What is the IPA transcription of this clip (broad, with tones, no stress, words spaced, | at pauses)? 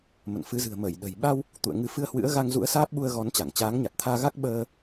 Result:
mə̰˧˨nfɨ˨˦zɨ̤˨˩ə̯ mə˧˩j ɗə̤˨˩j ɓa˧w | t̪ṵ˧˨ə̯ŋɨ˨˦fɨ˧ə̯ hwɨ̰˧˥ə̯ɣa˧ŋzṵ˧˥ə̯ saː˦˥p̚ɓu˧ə̯ɣɔ˨˦nt͡ɕa˧˩ŋ t͡ɕaː˨˦ŋɲa˨˩t̚t̪ʰaː˧ɣa˦˥k̚ ɓəː˧